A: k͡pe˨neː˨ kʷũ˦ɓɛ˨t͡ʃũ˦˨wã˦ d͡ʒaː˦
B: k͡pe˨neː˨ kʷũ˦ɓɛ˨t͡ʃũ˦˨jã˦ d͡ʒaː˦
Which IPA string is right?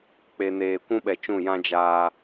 B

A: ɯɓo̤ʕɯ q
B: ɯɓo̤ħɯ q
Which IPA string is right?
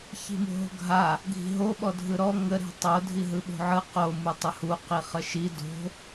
A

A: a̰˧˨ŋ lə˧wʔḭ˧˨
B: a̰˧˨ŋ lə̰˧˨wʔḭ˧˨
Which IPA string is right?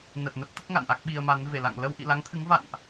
A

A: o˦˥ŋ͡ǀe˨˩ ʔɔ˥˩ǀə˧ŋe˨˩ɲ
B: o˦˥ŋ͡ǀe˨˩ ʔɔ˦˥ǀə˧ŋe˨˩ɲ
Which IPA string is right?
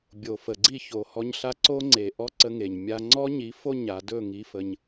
B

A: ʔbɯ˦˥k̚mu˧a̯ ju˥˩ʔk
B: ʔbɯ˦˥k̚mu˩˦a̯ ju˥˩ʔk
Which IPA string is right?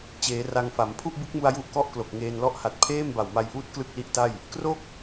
A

